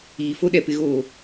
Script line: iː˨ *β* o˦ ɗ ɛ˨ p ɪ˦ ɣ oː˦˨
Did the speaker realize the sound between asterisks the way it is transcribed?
no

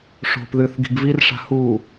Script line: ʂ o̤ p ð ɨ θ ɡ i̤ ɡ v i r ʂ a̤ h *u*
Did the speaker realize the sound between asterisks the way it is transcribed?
yes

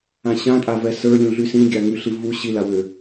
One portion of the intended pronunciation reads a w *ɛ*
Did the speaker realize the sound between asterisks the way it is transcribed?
no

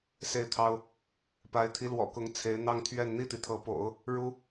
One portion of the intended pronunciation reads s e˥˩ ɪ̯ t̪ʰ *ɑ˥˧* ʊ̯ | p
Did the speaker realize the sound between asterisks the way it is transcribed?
no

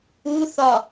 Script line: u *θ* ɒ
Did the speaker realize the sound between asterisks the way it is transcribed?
yes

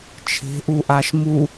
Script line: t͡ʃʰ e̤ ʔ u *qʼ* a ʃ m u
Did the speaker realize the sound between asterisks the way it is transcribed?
no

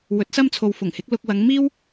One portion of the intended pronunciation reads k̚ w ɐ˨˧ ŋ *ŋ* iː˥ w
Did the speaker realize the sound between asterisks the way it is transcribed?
no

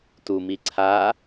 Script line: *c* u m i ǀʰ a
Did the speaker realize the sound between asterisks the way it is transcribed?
no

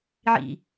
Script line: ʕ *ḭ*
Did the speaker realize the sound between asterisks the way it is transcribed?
yes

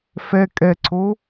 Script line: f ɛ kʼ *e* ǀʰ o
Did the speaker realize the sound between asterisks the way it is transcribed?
no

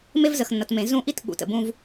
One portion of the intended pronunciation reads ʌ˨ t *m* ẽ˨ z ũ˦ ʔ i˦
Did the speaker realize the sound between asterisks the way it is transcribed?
yes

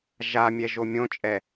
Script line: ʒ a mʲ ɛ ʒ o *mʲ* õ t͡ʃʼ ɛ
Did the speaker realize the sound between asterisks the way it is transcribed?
yes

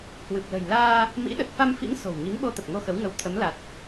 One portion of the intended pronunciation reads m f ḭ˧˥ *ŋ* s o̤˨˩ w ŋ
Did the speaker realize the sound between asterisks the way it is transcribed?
yes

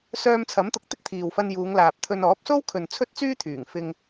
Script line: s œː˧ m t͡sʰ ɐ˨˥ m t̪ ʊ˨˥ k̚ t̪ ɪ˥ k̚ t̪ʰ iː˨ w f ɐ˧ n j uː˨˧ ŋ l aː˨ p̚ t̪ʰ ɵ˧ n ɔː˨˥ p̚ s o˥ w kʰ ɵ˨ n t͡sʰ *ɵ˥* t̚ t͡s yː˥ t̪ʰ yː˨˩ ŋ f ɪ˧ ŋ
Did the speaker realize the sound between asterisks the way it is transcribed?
yes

